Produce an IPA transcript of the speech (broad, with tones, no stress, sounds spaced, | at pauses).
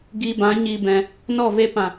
ɡ i˧ b ã˨˦ ɲ i˧ b ɛ̃˧ | n ɔ˦˨ v e˧ p ã˨